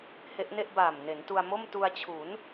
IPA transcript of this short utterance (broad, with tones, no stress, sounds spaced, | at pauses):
h e˦˥ ʔ n e˥˩ ʔ b aː˨˩ m n e˩˦ n t u˧ a̯ m o˥˩ m t u˧ a̯ t͡ɕʰ u˩˦ n